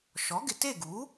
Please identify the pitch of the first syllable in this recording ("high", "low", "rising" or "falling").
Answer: rising